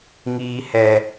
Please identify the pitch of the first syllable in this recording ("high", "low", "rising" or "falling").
low